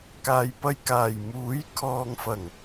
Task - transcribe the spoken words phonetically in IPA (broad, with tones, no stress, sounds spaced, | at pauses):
k aː˨ j p ɐ˧ j k aː˨˩ j m uː˨˥ j kʰ ɔː˨ ŋ f ɐ˨˩ ŋ